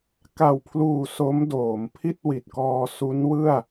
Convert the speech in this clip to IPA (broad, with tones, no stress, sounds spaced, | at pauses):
k a˨˩ w pʰ l uː˨˩ s o˦˥ m d oː˩˦ m pʰ i˥˩ t̚ w i˨˩ t̚ k ɔː˧ s u˦˥ n w ɯ˥˩ a̯